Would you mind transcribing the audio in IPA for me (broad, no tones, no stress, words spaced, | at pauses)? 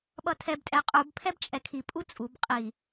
ɓʌtʰɛbtʼɛ qʼubpʰɛb t͡ʃʼɛkʰipʼu t͡sʼub qʼi